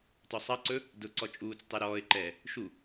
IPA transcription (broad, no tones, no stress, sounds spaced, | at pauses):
t ɔ sˤ ɑ ǀ ɵ | d ʊ ǀ ɔ t͡ʃʼ uː t͡s tˤ e ɾ ɔː ɪ̯ ǃ ɛː | ʃ u